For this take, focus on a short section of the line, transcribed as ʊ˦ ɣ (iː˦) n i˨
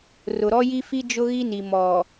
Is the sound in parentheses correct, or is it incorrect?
incorrect